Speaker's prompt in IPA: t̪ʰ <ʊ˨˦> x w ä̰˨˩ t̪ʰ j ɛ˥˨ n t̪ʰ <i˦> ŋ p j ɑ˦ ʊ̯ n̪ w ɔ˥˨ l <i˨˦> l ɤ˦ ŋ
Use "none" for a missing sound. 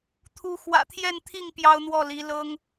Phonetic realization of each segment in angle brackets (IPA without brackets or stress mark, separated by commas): u˨˦, i˥˨, i˨˦